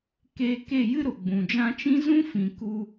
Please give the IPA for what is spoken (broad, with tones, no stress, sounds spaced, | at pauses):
k eː˧ k e˦˨ j ɨ˦ ɾ o˨ ɡ͡b ũ˨ d͡ʒ ã˧ t͡ʃ ĩ˦ z ũ˦ f ĩ˨ k u˧